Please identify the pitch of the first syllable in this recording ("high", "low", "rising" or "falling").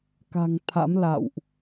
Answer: low